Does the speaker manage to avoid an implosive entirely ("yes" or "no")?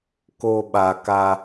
no